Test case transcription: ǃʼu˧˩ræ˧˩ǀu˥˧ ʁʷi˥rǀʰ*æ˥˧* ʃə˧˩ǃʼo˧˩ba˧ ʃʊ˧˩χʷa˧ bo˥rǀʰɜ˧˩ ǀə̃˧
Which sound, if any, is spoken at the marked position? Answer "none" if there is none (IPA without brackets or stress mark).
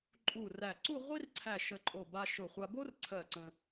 æ˧˩